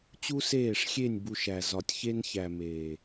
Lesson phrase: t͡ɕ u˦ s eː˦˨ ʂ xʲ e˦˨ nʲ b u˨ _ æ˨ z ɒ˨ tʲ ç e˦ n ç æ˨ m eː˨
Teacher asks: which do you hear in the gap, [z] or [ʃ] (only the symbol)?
ʃ